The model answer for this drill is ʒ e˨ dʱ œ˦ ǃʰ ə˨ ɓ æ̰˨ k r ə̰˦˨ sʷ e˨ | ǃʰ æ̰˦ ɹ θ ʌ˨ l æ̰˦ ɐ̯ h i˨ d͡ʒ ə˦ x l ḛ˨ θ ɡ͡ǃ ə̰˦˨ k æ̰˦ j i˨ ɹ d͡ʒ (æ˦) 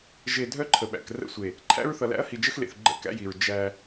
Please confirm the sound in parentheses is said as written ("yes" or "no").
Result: yes